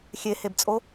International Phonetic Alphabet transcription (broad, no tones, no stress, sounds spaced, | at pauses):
xʲ e h e b t͡sʼ o